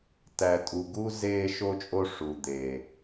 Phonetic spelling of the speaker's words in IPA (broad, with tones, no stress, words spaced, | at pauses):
tæ˨tʼu˨ɡu˦ zeː˦ʃo˦t͡ʃʼo˦ ʂu˨ d̪e˨